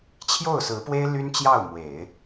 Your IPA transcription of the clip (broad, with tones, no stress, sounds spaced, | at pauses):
t͡ɕʰ j o˥˩ ʊ̯ s ɹ̩˧˥ p w e˥ ɪ̯ l y˥ n t͡ɕ j ɑ˥˩ ʊ̯ m w e˨˩˦ ɪ̯